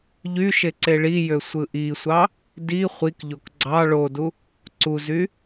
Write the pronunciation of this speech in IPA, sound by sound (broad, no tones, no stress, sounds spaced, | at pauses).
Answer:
ʎ y ʃ e ǀ e ɭ i j ø sʷ ɯ ʔ i sʷ ɑ | d i χʷ i k ʎ o k ɡ͡ǀ ɑ ɭ o d u | ǀ u z y